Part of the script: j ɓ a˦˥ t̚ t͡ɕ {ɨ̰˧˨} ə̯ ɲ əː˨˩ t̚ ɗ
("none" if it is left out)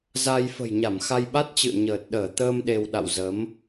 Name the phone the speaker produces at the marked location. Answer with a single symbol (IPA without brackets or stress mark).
ɨ̰˧˨